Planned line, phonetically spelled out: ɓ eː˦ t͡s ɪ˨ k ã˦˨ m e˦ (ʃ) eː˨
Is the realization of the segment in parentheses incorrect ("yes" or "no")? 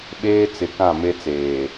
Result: yes